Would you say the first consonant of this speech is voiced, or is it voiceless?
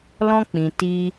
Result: voiced